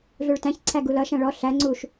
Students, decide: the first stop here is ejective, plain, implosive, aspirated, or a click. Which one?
plain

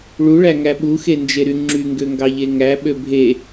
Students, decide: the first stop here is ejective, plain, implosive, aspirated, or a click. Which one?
implosive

